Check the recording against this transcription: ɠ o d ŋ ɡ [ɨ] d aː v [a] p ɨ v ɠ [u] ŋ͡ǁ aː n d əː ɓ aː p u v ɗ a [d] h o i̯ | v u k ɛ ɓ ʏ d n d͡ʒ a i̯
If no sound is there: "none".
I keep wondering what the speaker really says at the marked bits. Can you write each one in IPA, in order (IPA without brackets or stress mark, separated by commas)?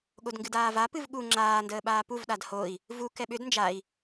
ɨ, a, u, d